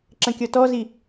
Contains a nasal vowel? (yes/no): yes